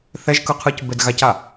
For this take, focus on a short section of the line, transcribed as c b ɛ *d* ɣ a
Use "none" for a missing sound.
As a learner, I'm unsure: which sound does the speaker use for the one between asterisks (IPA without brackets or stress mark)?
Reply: d